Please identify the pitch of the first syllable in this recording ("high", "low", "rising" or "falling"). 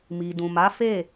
low